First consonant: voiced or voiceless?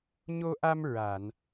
voiced